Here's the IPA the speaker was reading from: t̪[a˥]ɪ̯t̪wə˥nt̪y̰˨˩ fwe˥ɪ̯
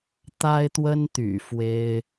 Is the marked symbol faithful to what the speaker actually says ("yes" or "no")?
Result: yes